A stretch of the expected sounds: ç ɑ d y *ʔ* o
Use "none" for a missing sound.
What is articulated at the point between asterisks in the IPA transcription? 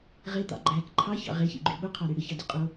qʼ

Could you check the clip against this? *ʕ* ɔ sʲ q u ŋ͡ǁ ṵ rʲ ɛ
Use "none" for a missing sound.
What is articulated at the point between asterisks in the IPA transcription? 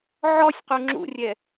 ʕ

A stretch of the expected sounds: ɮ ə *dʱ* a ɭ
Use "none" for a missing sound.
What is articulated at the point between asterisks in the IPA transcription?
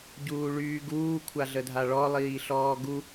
dʱ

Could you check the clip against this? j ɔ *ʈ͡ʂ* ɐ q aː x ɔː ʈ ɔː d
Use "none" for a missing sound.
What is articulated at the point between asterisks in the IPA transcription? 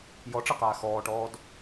ʈ͡ʂ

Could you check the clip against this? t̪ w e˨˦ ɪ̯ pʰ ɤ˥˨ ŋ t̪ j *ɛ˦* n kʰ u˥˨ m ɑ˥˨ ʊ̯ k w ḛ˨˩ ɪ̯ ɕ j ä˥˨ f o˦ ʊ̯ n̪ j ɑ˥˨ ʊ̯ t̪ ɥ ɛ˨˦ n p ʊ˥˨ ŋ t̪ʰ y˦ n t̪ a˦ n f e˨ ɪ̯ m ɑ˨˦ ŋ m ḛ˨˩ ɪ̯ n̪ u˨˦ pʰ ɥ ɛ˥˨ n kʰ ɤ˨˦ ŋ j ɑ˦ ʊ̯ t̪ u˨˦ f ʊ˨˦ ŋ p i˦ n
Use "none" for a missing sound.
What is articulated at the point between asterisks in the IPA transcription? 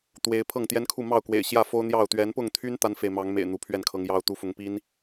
ɛ˦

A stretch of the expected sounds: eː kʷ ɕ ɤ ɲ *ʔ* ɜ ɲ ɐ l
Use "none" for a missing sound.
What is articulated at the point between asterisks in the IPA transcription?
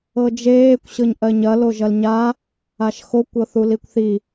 ʔ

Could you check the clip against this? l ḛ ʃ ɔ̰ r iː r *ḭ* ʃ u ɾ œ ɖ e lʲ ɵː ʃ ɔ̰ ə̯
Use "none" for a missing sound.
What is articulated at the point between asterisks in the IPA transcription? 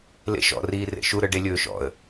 ḛ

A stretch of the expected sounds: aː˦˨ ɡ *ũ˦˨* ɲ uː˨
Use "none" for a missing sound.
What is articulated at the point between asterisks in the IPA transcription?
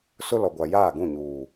ũ˦˨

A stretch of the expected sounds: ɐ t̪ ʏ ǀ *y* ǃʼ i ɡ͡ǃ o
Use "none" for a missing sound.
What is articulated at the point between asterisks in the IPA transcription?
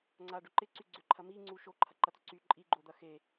y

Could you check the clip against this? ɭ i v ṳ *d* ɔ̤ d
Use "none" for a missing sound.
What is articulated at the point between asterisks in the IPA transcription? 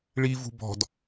b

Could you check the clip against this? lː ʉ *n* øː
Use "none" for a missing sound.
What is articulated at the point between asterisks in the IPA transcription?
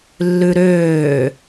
ɾ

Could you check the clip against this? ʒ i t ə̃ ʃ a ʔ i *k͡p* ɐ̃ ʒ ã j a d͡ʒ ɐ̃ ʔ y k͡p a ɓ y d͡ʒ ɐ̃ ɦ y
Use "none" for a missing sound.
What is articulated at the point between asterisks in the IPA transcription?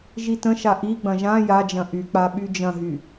ɡ͡b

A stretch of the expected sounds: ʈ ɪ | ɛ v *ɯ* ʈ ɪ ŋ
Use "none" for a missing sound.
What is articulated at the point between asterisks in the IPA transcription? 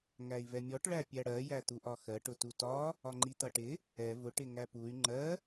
ʊ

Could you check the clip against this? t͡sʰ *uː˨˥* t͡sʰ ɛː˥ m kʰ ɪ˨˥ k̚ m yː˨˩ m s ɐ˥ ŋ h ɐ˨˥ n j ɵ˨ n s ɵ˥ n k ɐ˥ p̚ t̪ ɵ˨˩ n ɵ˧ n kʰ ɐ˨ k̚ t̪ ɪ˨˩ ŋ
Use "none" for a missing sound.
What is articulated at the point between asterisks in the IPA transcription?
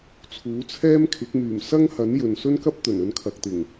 uː˨˥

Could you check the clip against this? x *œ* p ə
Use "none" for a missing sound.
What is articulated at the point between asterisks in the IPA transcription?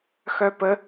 œ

